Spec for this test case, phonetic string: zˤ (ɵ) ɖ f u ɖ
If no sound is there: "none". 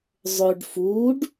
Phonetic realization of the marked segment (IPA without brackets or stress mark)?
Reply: ɵ